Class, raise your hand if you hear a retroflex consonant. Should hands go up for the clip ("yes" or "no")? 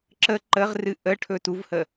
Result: yes